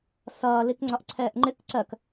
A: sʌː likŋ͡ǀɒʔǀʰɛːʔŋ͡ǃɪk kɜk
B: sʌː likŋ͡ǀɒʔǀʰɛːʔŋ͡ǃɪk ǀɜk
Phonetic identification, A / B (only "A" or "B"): B